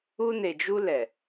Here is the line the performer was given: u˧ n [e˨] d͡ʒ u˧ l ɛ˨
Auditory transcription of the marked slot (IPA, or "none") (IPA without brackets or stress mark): e˨